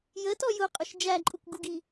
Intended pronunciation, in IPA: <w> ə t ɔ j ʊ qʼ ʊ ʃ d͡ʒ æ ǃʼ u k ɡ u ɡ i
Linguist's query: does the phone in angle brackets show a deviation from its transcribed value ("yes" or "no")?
yes